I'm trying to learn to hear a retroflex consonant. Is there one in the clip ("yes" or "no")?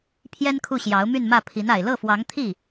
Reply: no